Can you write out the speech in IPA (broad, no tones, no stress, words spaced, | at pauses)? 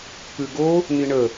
pʉɡo | niɳə